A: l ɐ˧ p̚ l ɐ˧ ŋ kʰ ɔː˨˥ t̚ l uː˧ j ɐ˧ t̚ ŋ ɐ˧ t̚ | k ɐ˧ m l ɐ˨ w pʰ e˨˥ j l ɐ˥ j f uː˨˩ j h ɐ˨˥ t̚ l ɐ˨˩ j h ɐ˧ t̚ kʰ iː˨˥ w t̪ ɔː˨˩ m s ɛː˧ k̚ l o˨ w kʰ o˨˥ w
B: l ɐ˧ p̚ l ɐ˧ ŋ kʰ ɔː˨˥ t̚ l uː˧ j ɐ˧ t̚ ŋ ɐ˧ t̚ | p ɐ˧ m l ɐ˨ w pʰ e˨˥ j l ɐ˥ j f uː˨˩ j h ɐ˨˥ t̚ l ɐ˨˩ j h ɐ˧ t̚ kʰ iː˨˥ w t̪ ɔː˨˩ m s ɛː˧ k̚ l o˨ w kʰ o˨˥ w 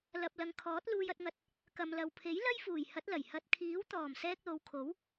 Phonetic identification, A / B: A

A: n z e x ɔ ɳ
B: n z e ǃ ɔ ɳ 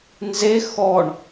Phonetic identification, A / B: A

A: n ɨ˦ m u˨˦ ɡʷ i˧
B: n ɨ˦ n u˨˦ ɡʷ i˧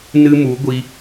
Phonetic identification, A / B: A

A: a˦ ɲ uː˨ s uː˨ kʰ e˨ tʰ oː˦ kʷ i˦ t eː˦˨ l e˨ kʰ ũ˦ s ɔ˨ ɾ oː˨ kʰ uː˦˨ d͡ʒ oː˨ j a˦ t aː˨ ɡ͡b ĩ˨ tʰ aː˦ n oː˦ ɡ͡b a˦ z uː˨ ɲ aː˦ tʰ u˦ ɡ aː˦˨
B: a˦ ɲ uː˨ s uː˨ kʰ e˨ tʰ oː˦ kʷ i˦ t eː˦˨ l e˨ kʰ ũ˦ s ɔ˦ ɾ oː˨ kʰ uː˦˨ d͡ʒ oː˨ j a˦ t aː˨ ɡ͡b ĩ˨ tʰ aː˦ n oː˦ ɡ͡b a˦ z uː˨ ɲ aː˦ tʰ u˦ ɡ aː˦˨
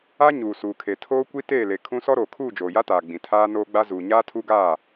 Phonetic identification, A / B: B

